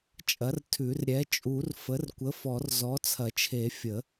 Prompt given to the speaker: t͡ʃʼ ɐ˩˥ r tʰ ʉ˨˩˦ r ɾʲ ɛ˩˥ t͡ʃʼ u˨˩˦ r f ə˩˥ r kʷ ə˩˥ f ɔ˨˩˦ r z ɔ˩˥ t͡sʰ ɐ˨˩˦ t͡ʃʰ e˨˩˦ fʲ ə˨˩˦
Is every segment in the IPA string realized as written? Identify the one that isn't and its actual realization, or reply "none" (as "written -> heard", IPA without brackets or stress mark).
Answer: none